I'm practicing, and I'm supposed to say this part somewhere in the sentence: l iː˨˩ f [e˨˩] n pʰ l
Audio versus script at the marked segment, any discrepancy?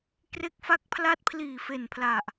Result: no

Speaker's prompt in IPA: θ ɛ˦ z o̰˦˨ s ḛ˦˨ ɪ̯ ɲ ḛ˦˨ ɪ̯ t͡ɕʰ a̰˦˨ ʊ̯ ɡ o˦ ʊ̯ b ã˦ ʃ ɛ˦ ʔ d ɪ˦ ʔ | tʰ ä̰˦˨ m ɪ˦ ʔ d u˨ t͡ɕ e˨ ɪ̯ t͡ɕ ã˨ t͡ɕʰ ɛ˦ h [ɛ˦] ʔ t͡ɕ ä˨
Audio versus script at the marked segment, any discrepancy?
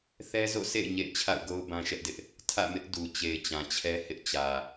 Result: yes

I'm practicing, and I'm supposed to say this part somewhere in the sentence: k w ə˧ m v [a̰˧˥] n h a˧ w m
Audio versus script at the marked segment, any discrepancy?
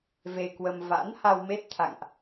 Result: no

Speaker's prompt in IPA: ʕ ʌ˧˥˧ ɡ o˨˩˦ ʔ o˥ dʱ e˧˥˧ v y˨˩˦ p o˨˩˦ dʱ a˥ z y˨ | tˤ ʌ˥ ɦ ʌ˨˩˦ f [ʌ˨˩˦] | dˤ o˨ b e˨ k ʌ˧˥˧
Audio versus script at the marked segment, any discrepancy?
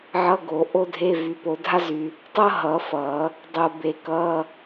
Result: no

